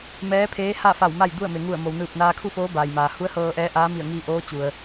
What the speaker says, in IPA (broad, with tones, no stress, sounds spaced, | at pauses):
m ɛː˧˥ pʰ eː˧˥ h a˥˨ f a˧˩ w m a˥˨ j d u˥˨ ə̯ m e˩ ŋ u˧˩ ə̯ m o˩ w n ɯː˧˩ p̚ n aː˧ kʰ u˥˨ f oː˧˥ b aː˩ j m aː˩ h u˧˥ ə̯ h ɤː˧ ʔ ɛː˧˥ ʔ aː˧˥ m i˧˩ ə̯ ŋ iː˧ ʔ oː˧˥ t͡ɕ u˩ ə̯